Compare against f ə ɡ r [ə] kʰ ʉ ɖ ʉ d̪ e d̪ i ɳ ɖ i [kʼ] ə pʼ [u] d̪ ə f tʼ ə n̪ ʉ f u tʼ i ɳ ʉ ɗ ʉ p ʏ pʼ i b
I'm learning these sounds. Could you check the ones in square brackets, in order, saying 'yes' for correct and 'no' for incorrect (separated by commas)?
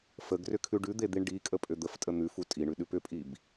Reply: no, yes, no